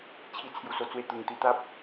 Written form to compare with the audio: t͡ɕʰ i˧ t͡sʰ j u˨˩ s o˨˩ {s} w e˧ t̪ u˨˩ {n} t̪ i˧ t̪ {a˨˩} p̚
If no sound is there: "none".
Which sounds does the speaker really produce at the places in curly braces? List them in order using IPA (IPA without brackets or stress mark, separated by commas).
t͡s, ŋ, a˦